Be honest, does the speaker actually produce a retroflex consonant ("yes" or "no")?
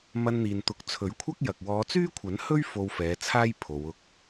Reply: no